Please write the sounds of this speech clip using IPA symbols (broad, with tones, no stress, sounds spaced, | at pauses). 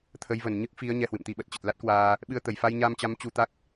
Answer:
t̪ʰ ə˨˦ j v ə˨˩ n ɲ ɨ˦˥ k̚ f i˨˦ ə̯ ɲ ɛ˧ h w ɨ̰˧˨ m t̪ i˧ ɓ ə˨˩ t̚ t͡ɕ ə˨˩ t̚ l a˦˥ t̚ k w aː˧ | ɓ ɨ˧ ə̯ t̪ ə˨˩ j f a˧ j ɲ a˧ m t͡ɕ a˨˦ m t͡ɕ u˧ t̪ a˦˥ k̚